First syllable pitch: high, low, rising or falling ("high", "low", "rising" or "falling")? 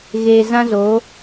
low